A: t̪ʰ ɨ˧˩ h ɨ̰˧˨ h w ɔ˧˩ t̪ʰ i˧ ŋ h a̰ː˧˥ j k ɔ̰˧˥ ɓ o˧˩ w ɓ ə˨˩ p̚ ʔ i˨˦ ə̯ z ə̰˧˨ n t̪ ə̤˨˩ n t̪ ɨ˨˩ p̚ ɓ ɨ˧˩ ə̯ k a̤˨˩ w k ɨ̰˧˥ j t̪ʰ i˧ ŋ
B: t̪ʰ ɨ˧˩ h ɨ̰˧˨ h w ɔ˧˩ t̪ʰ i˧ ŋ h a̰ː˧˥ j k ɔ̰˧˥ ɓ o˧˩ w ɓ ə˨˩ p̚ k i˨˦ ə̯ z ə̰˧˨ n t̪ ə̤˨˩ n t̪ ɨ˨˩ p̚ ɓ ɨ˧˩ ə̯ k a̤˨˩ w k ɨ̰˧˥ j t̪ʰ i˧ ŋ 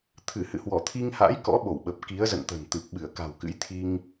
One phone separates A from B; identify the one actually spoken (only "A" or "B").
B